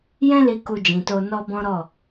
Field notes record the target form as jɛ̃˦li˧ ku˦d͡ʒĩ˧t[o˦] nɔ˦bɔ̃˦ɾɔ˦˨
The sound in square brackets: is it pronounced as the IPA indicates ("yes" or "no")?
yes